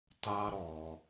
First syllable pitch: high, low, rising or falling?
high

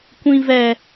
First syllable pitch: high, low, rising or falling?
high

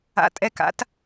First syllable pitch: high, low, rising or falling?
rising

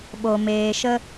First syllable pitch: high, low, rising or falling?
low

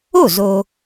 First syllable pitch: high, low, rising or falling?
falling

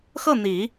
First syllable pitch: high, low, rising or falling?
falling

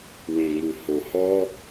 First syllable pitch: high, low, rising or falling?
low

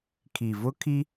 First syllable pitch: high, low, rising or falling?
low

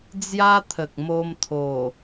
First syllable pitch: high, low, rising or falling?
high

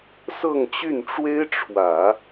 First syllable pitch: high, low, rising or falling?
falling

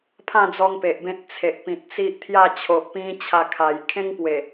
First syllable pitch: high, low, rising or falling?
falling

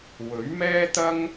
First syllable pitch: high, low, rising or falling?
rising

